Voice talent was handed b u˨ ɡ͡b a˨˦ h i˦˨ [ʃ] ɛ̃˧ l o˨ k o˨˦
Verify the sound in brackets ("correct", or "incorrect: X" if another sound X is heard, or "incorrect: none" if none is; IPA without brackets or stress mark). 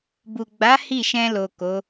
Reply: correct